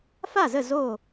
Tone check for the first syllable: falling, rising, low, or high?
falling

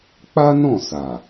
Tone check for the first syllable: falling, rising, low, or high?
high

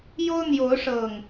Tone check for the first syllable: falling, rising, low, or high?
high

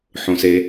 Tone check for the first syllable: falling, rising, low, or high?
low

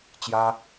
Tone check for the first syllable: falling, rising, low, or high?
high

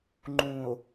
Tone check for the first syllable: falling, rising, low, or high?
low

